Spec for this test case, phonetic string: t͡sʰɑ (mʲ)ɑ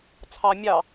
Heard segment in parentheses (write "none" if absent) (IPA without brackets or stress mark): mʲ